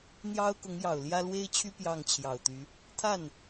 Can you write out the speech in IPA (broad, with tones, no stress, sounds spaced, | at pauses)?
n̪ j ɑ˥ ʊ̯ k ʊ˧˥ ŋ j ɑ˨˩ ʊ̯ l j ä˥ l w e˥ ɪ̯ t͡ɕʰ y˥ p j ɑ˥˩ ŋ t͡ɕʰ j ɑ˨˩ ʊ̯ t̪ y˧˥ | t̪ʰ a˥˩ n